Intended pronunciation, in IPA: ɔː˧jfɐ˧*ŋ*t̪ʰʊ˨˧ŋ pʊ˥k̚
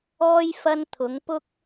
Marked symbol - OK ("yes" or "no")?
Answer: no